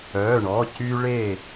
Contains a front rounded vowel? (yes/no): yes